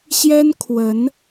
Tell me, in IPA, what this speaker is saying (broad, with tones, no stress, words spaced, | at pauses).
ɕjɛ˥nkʰwə˧˥n